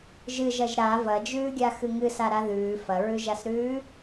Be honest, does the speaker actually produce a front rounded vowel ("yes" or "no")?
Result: no